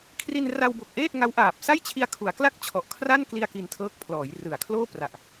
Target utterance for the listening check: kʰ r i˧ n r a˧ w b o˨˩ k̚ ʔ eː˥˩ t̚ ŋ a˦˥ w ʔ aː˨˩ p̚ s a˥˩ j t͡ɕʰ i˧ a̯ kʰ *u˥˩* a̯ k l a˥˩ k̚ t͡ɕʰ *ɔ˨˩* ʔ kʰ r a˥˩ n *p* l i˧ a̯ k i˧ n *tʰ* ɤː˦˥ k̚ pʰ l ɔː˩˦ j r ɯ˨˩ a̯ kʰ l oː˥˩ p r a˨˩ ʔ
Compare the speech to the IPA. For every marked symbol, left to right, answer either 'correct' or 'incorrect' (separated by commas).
incorrect, correct, incorrect, correct